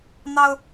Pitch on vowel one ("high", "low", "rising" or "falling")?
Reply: high